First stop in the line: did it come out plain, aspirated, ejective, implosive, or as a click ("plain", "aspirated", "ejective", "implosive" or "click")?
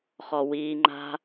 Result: click